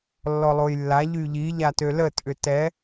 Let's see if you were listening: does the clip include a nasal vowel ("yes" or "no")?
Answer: no